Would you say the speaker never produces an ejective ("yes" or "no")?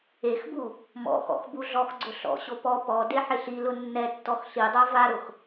yes